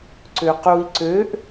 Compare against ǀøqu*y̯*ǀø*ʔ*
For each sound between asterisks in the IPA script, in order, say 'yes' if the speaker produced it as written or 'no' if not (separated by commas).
no, yes